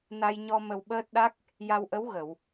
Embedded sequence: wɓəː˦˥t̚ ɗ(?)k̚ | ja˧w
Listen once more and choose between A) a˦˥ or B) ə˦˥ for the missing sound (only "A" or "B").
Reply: A